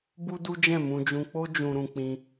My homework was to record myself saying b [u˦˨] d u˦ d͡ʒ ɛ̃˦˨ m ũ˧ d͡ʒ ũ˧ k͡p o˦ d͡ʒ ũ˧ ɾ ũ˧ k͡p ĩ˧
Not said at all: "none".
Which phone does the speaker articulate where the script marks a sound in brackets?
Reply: u˦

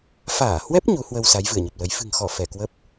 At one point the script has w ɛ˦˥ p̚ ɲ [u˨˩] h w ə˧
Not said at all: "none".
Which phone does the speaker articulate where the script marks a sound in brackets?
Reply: u˨˦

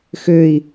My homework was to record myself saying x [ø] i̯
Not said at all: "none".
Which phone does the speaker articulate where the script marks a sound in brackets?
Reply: ø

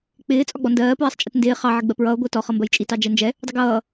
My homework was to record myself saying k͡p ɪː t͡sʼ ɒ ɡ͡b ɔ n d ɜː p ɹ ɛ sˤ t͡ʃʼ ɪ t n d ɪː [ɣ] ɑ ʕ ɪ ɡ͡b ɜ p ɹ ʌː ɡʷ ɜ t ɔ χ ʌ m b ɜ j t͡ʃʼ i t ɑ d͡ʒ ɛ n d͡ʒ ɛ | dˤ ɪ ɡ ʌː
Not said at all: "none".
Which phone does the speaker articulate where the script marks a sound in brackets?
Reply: χ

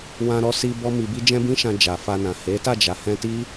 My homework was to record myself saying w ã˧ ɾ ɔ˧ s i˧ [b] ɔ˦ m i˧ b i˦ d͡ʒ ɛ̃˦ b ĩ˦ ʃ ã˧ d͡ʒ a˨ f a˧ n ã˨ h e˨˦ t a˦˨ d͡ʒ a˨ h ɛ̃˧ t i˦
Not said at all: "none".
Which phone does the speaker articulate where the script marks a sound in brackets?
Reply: b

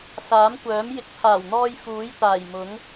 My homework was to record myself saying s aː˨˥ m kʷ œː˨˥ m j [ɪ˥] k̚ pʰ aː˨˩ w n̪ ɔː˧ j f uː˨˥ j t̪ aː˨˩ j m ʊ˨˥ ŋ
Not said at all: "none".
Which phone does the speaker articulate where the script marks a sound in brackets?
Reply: ɪ˧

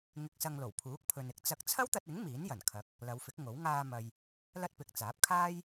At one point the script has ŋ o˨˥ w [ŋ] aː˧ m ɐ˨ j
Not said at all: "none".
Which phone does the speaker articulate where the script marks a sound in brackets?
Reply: ŋ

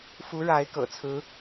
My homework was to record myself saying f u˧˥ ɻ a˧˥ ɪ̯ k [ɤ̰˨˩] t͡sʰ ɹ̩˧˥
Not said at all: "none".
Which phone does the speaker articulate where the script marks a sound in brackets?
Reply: ɤ̰˨˩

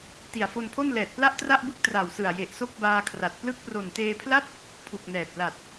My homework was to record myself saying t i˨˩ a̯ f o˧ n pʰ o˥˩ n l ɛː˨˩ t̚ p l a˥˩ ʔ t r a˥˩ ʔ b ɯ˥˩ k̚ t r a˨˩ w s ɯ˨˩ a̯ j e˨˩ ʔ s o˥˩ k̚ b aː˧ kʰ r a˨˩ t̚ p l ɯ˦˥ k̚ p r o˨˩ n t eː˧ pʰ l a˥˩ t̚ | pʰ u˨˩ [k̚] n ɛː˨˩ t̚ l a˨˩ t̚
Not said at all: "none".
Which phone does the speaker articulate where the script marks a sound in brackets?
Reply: k̚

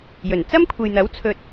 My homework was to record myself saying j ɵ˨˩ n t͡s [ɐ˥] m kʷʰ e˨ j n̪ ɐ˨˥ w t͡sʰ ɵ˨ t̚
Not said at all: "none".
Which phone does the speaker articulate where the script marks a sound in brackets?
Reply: ɐ˥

